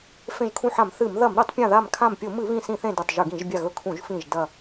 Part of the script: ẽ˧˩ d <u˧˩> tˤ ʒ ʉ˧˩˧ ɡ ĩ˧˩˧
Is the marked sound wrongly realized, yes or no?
no